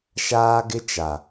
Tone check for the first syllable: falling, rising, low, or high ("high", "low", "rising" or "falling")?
high